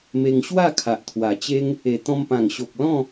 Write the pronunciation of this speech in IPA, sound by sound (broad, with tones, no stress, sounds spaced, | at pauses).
m e˧ ŋ ɕ w a˥˧ kʰ a˨ ʔ t̪ʰ w a˨˩ t͡ɕ e˦ ŋ | e˨˩ t̪ ɔ̃˧ m p ã˨˩ ŋ ɕ o˨ k̚ l ɔ̃˥˧